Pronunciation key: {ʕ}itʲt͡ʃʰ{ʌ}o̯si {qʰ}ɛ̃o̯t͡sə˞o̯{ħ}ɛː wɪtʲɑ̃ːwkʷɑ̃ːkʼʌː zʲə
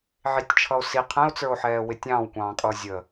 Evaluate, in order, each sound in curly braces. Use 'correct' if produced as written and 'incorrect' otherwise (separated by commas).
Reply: correct, correct, correct, correct